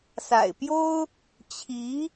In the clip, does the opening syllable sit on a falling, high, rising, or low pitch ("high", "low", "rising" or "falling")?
low